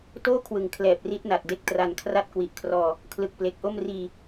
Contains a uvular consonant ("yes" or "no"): no